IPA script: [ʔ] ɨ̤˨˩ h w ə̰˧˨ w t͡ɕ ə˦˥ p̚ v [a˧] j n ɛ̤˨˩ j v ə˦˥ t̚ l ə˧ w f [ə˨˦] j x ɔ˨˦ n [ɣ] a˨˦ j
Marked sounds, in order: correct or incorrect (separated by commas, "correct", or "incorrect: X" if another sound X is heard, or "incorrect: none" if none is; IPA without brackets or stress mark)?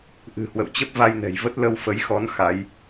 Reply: correct, correct, correct, incorrect: x